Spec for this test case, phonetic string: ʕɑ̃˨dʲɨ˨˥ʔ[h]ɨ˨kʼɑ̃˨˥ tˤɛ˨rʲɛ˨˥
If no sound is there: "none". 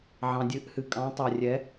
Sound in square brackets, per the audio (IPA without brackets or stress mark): h